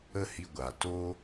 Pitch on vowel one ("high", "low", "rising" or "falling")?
high